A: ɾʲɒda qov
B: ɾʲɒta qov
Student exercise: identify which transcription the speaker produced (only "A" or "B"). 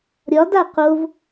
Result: A